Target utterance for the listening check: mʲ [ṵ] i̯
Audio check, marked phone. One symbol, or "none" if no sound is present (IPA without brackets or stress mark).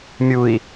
u